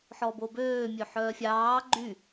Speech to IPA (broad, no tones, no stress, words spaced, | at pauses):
ħɔbobøː mʲøħœːfʲɑː ɡ͡ǃy